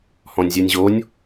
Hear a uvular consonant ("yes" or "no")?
no